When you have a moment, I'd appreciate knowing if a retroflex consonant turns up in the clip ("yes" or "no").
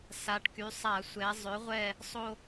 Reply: yes